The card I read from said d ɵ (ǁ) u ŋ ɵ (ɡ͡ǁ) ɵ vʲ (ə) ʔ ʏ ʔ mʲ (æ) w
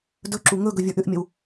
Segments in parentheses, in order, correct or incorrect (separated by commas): correct, incorrect, incorrect, incorrect